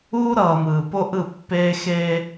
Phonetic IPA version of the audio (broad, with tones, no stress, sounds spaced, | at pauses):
uː˦ ɾ ʌː˨ m ɯː˨ p o˦ ʔ ɯ˦˨ pː eː˦ x eː˦